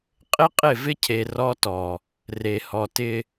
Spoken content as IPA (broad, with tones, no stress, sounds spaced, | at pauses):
qʼ ɪ˦ qʼ ɪ˦˨ v ɪ˦ cʰ e˨ r ɔ˦ t ɔ˨ | r e˨ h ɔ˨ t ɪ˦